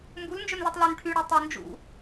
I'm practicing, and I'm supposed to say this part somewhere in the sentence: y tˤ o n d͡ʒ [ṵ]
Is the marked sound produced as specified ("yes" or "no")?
yes